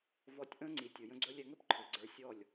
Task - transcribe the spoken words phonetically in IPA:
vɔ˧tʲʔə̃ː˦ŋ͡ǀi˨ tʲɯ˨ jə̃˧ɡ͡ǀɵ˧lʲ ɛ˧ŋɵ˦p ǃʰɯ˨ɡ͡ǀə˞˧ sʲɔ˦˨lʲ

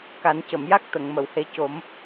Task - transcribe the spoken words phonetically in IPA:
ka˨˩˦ncə˨˩˨mja˦˥k̚ t̪ə˨˩˨ŋmə˨˩˨whe˧˥ co˨˩˦m

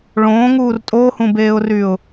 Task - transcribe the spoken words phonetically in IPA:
ɭõːŋuːr tʼohũbeːʊ̯ryʊ̯

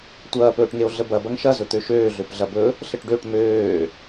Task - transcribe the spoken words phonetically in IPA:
tʷɐːpɵːʈŋeo̯ ɮəbɐ bɐŋʃɐ zɵt̪øʃøː ɮøpɮɐbɵ | ɬəʈɖøʈ møː

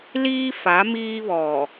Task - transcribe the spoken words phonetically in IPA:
liː˦fa˨˦ miː˦ βɔ˨

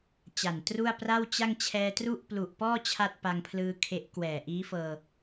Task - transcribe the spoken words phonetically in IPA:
t͡ɕa˨˩ntru˥˩a̯ pra˥˩wt͡ɕa˥˩ŋ t͡ɕʰɛː˧tru˥˩ʔ plu˨˩ʔpɔː˥˩ t͡ɕʰa˥˩t̚pa˧ŋpʰlɯː˧kʰe˦˥ʔ kwɛː˨˩ʔiː˦˥fɤː˧

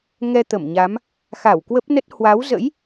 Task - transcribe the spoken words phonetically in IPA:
ŋɛ˧ t̪ə˧˩mɲa˨˦m | xa˧˩wkwə˦˥p̚nə˦˥t̚ hwa˨˦wzə̰˧˥j

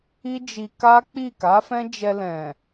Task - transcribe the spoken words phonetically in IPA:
i˦d͡ʒi˧ka˦k͡pi˦˨ ka˨˦fɛ̃˦d͡ʒɛ˧lɛ̃˨

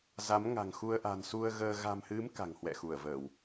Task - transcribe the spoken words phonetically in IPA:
za˨˦m ŋa̤˨˩ŋxu˧ə̯ ʔa̤˨˩n su˧ə̯ɣəː˧ ɣa̤˨˩mhɨ˨˦m ka̤˨˩ŋhwɛ̰˧˨xu˧˩ə̯ vəː˧˩˨w

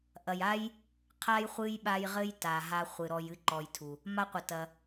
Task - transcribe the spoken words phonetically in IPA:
ʔɐ˨ja˥j | qʰa˦j χʷɨ˥jɓa˦jʁɘ˥j ta˩ɦa˨ χʷɨ˩ɾɔ˨j ɨ˦ǃɔ˨jtʰu˩ | ma˦qʷɘ˩tɐ˩

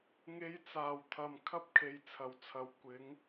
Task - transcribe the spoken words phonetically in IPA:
ŋe˧jt͡saː˨˩wt̪ʰɐ˨m kʰɐ˥p̚kʰe˨j t͡sʰɐ˨˩wt͡sʰɐ˨˧w kʷɪ˨˥ŋ

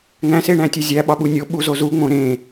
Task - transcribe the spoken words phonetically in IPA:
ŋæ̃seɳæ̃tʲe zʲæɓɒɓu nʲoɓuzo zuŋ͡mõ ɾẽ

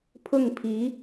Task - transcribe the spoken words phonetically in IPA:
pʰʊ˥˩ŋpʰi˧˥

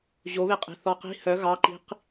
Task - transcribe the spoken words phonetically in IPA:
ʑoβeqʼe̤ θɔqi̤ hœ ɣɑǃi̤q

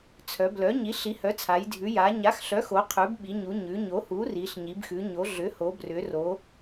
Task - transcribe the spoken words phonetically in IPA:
t͡sʰœ˩˧blœ˩˥ ɲi˩˥ɬi˩˥hœ˩˥t͡sʰa˩˧j dʱʉ˩˧ja˩˧ ɲa˩˥xɬœ˩˥xo˩˧qʰʉ˩˧b ɓi˩˧ɲu˩˧ ɲʉ˩˧ ɲo˩˥hu˩˥ ri˩˧ɬɲi˩˧bxʉ˩˧ ɲo˩˧ ɮʏ˩˥ho˩˧brʏ˩˧ro˩˧

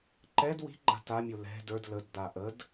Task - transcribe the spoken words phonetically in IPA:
ǃɛd wi̤ɡ͡ǃa̤ tamʲo lɛ̤ də˞d lədd̪a ʔəd

